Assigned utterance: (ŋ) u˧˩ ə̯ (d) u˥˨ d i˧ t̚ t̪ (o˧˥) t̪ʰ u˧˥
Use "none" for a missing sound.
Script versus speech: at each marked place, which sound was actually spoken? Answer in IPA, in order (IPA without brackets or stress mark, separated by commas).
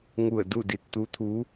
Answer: ŋ, d, u˧˥